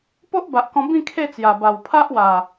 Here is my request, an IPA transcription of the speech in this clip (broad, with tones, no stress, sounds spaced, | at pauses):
p o˦ ʔ b a˨ ʔ k ɔ̃˧ b ĩ˥˧ kʰ e˥˧ t͡s j a˨˩ b a˨˩ w pʰ a˦ ʔ w a˨˩